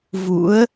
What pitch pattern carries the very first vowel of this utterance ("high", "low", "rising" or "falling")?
rising